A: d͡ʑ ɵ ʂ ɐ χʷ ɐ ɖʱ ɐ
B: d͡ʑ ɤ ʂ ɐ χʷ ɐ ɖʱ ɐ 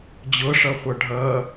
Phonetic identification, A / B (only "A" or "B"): B